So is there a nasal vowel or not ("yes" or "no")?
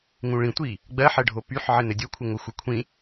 yes